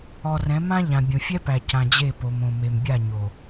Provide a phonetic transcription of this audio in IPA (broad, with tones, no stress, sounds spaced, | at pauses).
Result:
ɔ˨ r ɛ̃˨˦ m ã˦ ʎ ã˨ bʲ õ˨ fʲ ɛ˦ p æ˨ c ã˨ d͡ʑ e˦˨ p o˨ m õ˨ m e˨ m bʲ a˦˨ ɲ o˨